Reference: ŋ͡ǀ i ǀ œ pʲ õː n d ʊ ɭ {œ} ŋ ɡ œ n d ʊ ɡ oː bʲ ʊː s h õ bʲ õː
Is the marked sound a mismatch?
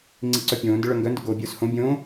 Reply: no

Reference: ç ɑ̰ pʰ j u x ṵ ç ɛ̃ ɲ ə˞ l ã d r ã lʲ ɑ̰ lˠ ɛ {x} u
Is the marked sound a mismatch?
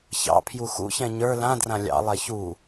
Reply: yes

